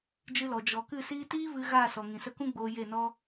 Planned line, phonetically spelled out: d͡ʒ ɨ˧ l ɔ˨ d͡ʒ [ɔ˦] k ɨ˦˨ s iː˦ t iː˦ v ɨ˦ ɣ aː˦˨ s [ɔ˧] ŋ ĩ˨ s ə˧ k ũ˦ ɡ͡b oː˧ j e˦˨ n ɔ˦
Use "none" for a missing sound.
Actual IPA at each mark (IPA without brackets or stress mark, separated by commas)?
ɔ˨, ɔ˨